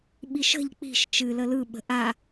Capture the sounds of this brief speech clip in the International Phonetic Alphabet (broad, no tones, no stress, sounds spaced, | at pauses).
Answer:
ɓ i ʃ ə̤ ʎ k͡p i̤ ʃ t͡ʃ ɨ l ə l ɯ ɓ ə̤ ʔ a